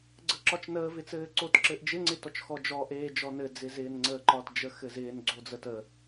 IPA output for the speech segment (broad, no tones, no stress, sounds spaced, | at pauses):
ɡ͡ǀ ə ǁ ɒ t͡ʃ n əː v ɪ t͡s ɘː ǀ o t ǁ ɘ ʔ d͡ʒ ɪ ŋ͡ǀ ɪ t ɔ t͡ʃ x ɔ d͡ʒ ɔ ʔ eː d͡ʒ ɔ n ɘ d͡z ɪ z ɪː n ŋ͡ǀ əː ǃ ɒ t d͡ʒ ə x ɘ z ɪː n ɡ͡ǀ o d͡z ə t ə